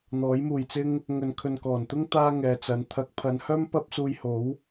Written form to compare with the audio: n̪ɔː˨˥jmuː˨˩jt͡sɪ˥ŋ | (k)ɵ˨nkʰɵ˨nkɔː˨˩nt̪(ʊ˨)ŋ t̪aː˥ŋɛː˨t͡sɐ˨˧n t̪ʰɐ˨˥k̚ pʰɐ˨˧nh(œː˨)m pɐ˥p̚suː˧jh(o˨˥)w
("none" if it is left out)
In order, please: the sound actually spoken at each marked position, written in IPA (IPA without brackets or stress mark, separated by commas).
ŋ, ʊ˥, œː˥, o˨˥